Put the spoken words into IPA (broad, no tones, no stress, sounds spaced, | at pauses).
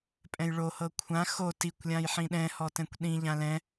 pʼ ɛ̃ j ɭ o h ɤ kʷʰ ã x o t i kʷ lʲ ã j ħ ĩ ɗ ɛ̃ h ɔ t ɛ̃ kʷ ɗ ĩ ʎ ã l ɛ̃